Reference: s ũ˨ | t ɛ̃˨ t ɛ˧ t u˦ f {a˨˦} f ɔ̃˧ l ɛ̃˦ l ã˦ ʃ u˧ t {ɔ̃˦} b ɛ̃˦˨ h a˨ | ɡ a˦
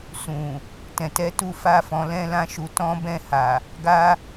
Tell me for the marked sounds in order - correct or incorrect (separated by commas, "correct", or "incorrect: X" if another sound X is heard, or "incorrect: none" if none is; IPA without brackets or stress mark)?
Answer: incorrect: a˦, correct